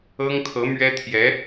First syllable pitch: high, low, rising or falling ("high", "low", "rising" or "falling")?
high